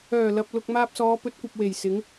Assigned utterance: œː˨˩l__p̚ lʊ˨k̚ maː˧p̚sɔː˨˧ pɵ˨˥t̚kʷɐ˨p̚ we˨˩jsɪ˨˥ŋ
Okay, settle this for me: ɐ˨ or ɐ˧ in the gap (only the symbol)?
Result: ɐ˨